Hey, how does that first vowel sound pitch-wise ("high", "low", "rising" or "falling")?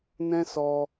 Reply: high